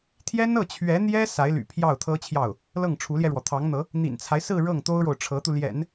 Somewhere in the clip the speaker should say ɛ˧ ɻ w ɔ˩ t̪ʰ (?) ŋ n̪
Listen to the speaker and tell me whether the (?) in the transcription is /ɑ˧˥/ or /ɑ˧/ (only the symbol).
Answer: ɑ˧˥